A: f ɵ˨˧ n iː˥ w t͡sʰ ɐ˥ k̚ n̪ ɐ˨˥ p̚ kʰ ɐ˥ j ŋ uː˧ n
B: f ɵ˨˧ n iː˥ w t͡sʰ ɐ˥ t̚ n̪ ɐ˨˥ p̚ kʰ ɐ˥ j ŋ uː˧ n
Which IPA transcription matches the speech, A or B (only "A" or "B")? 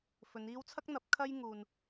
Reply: A